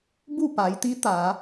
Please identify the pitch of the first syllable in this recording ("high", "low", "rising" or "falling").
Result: falling